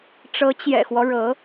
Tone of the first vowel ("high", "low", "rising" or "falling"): rising